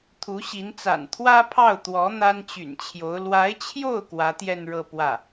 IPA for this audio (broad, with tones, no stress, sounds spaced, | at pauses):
t̪ʰ u˧˥ ɕ i˧˥ n t͡s a̰˨˩ n t̪ʰ w ä˥ pʰ ɑ˥˩ ʊ̯ t̪ w ɔ˧˥ n̪ a˥ n t͡ɕ y̰˨˩ n t͡ɕʰ j o˧˥ ʊ̯ l w a˧˥ ɪ̯ t͡ɕʰ j o˥˩ ʊ̯ k w ä˧˥ t̪ j ɛ˥˧ n ɻ ɤ˥˧ p w ä˥˩